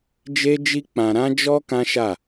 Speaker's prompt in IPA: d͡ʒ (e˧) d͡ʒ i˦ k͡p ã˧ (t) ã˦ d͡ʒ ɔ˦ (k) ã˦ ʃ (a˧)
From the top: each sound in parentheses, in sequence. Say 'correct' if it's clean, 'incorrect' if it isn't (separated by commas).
incorrect, incorrect, correct, incorrect